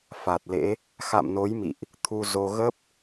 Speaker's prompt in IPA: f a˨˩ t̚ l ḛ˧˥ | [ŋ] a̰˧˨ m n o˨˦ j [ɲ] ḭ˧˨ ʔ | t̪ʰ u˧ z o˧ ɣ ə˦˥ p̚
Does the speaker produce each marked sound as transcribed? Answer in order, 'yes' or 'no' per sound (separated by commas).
no, no